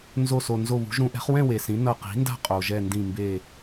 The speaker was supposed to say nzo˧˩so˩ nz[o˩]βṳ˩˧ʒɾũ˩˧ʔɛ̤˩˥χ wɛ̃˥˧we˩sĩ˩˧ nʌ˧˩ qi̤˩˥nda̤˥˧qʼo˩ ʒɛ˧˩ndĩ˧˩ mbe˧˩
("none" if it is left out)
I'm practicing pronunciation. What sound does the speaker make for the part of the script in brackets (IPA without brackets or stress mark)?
o˧˩